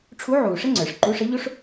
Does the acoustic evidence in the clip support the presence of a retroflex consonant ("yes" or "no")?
yes